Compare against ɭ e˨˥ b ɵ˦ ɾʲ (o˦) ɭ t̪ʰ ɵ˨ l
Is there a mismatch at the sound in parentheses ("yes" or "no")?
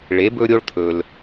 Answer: no